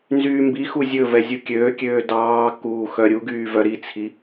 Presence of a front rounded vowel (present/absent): present